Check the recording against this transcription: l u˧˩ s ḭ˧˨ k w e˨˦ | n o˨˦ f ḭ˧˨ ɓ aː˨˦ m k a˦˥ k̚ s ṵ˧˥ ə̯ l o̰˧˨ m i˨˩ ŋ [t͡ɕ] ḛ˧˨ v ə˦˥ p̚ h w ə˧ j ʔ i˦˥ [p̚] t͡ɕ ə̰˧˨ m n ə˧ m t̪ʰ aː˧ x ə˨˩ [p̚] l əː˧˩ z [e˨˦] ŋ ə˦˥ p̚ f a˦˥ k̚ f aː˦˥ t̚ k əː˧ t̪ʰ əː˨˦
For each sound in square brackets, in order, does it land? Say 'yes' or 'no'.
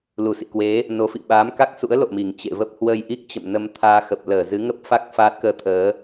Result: yes, no, yes, no

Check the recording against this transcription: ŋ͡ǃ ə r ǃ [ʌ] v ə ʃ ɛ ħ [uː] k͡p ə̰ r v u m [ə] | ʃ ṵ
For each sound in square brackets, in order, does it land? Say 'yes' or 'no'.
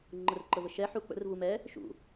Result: no, no, no

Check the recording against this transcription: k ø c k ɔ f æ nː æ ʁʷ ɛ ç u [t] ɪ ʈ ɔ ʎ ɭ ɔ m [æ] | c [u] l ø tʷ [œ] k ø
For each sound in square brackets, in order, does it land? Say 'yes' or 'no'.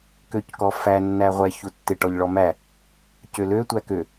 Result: no, yes, no, no

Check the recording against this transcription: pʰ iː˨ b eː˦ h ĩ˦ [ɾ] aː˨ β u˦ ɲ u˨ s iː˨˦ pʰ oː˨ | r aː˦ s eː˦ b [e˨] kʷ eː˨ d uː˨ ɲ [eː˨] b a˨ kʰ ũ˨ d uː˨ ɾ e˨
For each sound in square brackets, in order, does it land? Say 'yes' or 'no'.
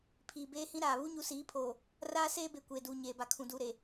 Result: yes, yes, yes

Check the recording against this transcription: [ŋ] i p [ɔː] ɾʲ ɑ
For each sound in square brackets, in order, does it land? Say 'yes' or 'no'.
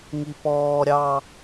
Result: yes, yes

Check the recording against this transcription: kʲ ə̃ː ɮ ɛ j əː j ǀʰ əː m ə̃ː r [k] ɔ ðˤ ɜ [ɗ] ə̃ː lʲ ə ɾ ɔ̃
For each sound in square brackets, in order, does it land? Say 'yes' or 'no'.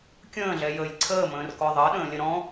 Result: yes, yes

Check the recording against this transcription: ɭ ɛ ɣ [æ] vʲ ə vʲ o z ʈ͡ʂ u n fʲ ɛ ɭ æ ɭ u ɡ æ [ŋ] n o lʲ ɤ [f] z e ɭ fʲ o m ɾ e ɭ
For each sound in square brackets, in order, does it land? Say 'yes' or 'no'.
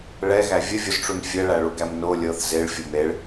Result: yes, no, no

